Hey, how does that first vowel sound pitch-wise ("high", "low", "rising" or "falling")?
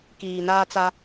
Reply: low